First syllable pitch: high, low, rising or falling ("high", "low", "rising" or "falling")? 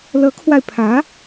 rising